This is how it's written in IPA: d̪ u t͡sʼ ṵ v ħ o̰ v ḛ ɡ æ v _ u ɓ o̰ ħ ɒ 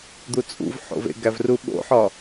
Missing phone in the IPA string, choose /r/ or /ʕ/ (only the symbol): r